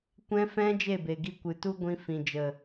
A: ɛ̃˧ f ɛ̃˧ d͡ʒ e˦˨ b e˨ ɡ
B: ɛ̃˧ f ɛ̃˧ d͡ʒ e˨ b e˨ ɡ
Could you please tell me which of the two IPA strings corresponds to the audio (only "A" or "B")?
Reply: A